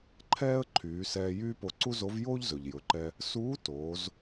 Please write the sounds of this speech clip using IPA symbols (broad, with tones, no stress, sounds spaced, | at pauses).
ǃʰ ɛː˥ ə̯ ǃʰ yː˩˧ s ɛː˧ j yː˥ p o˧ ǀ u˥ z o˧˥ v j oː˥ ʎ z ɵ˩ ʎ j ɵ˩˧ ǃ ɛ˧ | s uː˧˥ t oː˩˧ z